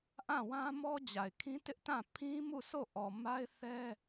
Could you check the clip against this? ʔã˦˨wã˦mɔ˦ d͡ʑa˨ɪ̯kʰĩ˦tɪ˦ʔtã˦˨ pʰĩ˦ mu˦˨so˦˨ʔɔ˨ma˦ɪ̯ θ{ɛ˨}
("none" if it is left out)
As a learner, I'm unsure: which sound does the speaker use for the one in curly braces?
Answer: ɛ˦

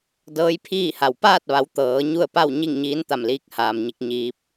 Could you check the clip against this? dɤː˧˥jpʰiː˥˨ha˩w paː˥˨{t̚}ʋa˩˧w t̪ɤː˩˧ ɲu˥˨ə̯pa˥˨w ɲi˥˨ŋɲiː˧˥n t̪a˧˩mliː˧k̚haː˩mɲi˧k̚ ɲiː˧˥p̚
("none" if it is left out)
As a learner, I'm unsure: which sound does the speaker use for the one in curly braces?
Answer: t̚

